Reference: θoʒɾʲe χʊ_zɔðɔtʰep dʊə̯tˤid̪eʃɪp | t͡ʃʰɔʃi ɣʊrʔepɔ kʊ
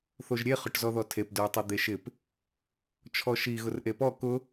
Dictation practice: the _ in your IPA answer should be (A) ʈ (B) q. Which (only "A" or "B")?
A